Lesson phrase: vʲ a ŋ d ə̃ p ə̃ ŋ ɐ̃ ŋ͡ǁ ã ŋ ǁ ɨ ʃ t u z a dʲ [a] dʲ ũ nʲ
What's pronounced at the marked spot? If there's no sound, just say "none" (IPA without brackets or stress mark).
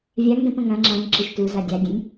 a